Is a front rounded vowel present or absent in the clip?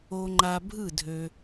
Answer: present